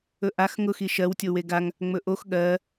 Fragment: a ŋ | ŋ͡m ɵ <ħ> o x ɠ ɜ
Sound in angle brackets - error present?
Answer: yes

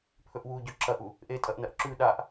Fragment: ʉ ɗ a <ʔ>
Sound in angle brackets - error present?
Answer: no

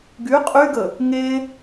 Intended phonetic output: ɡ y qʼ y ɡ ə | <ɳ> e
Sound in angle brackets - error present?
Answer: yes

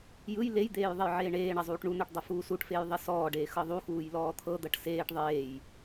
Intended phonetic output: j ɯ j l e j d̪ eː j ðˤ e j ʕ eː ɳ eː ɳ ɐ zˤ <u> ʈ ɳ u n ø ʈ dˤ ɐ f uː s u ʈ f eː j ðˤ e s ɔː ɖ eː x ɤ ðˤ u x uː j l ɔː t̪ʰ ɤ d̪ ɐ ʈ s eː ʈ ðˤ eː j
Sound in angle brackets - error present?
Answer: yes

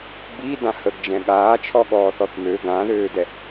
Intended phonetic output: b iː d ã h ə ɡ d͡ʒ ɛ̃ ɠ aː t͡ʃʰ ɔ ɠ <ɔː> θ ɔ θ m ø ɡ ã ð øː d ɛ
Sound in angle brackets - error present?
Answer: no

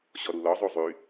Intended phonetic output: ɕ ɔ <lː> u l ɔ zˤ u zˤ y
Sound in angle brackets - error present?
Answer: yes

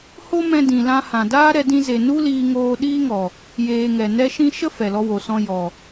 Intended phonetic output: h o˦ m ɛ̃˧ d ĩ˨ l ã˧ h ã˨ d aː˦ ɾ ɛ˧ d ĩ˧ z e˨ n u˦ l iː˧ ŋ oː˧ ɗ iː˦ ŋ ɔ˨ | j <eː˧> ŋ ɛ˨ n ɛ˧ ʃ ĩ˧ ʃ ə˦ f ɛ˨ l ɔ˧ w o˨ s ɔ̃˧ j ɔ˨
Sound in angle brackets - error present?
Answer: no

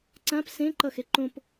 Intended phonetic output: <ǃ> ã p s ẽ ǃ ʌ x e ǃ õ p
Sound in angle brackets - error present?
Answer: yes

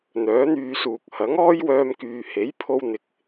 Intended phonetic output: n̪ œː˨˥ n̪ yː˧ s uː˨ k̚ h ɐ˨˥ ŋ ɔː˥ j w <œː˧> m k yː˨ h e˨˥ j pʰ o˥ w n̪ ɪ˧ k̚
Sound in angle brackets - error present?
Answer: no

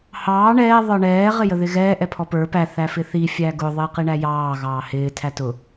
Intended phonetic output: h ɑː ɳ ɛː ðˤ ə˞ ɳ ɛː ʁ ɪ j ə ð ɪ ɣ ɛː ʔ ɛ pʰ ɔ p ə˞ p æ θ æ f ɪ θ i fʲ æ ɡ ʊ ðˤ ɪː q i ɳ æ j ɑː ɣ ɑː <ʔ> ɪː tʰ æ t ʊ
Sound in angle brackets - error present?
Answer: yes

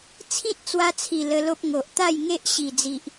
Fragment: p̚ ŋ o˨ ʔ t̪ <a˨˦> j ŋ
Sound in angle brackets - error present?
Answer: yes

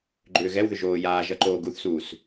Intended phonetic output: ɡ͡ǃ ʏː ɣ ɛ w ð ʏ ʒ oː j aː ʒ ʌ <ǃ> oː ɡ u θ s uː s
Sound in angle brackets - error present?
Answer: no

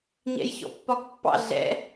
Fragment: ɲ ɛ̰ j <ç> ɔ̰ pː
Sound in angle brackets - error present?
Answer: no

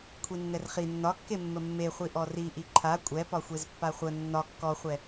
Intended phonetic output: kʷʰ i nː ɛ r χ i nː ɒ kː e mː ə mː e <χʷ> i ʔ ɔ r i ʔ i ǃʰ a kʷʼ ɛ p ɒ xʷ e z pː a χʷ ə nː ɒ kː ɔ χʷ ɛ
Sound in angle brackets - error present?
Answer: no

